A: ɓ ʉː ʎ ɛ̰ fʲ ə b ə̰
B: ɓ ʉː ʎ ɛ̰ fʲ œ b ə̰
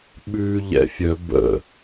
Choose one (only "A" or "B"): B